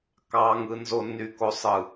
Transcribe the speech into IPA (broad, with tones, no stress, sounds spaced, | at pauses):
k ɑ˨ ŋ ɯ˨ n z o˨ nː y˨ k o˨ sˤ ɯ˨